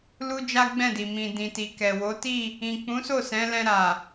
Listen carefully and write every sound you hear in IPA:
lu˦d͡ʒa˦ɡ͡bɛ̃˦˨di˨ mĩ˨ dĩ˨ti˨kɛ˨wo˨˦ ti˦˨ | ĩ˨k͡pũ˨˦so˦˨ sɛ̃˨˦lɛ̃˧ ɾa˨

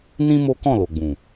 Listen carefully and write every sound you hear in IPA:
nĩ˦ mo˦kɔ̃˦˨ lo˨ɡ͡bũ˨

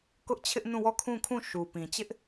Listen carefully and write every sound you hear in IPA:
kʊ˦ʔt͡ɕʰɪ˦ʔnũ˦˨wɔ˦˨ kʰũ˦˨kʰũ˦˨ ʃu˨ pĩ˨ t͡ɕɪ˦ʔ

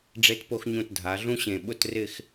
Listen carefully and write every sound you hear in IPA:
ɖ͡ʐe˧tpo˧xɲũ˧˩t dʱa˩˧ɮũ˥ɕẽ˧˩ ɓʊ˥˧trɪ˥˧x

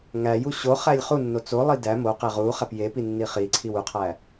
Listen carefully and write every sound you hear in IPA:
ŋæju ɕo χælʲχunːo t͡solˠi dæ moqe ʁu χæpjepi nːiχiǀʰiw uqʰæ

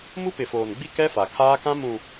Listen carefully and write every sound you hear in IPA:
mu˦pɪ˨foː˨nɡ͡bi˦ kɛ˦ fa˨kʰaː˦kã˦ mũ˨

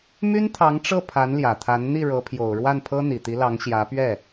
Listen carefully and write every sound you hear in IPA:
my˥nt̪ʰɑ˧˥ŋʈ͡ʂɤ˥˩ pʰa˧˥nljä˨˩t̪ʰa˧˥n n̪i˥˩ɻɤ˧˥pʰjo˨˩ʊ̯ ɻwa˥˩npʰɤ˥ n̪i˨˩t̪i˧˥lɑ˧˥ŋ ɕjä˧˥pɥɛ˥˩

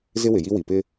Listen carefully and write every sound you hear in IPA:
zɪ˦wɪ˨ji˦ wi˨pɪ˦

